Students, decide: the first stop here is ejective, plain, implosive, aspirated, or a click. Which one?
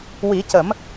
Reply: plain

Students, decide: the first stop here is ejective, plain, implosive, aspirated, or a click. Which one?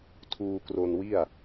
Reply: aspirated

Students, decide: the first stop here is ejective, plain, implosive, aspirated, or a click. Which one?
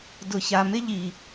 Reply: plain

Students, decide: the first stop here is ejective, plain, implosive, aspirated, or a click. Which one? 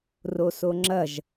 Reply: click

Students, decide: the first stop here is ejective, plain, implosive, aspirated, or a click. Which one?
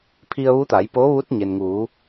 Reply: aspirated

